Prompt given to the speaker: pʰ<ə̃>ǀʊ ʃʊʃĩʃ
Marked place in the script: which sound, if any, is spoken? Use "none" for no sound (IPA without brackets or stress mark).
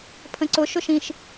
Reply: ə̃